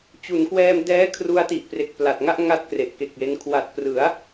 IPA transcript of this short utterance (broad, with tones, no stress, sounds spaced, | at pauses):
t͡ɕ u˩˦ n k w ɛː˧ m d ɛː˦˥ kʰ r u˧ a̯ t i˨˩ ʔ p r e˨˩ k̚ p l a˨˩ t̚ ŋ a˥˩ ʔ ŋ a˥˩ t̚ k r e˨˩ ʔ k e˨˩ k̚ j e˧ n kʰ w a˨˩ t̚ p r ɯ˩˦ a̯